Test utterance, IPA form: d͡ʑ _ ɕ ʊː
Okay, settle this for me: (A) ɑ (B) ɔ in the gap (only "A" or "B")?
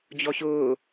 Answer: B